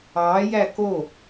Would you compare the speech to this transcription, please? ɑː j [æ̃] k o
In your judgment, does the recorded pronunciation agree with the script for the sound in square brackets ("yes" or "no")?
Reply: no